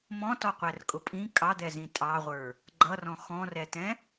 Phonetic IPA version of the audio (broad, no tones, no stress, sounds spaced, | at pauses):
m ɔ̃ t ɔ qʷ æ r kʼ ʊ pʼ ĩ kʼ ɑ d̪ ɛ z ĩ tʼ ɑ ʁʷ ə˞ | ɡ͡ǃ ʌ r ɔ̃ x ɔ̃ r ɛ t ɛ̃